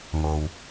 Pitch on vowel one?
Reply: low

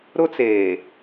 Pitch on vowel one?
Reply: high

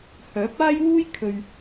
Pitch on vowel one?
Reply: rising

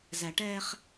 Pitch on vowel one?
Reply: low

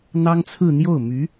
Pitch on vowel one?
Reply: high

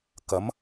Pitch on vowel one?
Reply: rising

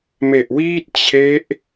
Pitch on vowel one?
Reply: low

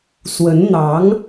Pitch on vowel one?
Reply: rising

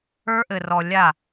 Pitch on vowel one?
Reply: high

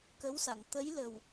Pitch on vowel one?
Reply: rising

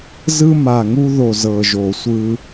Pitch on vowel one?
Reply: high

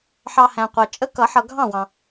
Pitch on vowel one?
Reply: low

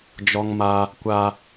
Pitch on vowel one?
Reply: high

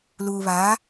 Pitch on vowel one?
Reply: low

